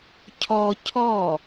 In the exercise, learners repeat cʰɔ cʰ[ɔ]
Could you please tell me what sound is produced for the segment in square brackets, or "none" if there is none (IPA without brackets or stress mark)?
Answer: ɔ